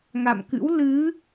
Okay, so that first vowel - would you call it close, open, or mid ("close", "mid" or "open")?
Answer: open